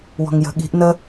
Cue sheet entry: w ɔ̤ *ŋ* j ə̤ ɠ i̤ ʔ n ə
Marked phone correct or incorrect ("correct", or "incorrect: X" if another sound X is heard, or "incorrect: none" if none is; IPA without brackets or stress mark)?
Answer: correct